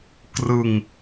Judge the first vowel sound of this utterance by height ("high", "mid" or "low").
high